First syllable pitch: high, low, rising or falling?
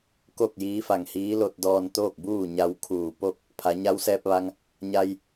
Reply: falling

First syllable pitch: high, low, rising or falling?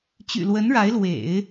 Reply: low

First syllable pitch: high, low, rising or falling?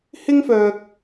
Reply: high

